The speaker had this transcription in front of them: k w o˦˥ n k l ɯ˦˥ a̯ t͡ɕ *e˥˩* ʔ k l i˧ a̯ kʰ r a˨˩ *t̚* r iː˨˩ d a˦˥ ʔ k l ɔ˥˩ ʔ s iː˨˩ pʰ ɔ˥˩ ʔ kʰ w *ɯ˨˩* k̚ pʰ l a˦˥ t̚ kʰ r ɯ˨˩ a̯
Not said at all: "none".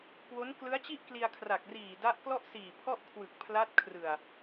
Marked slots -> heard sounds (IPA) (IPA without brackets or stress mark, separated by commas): i˥˩, k̚, ɯ˨˩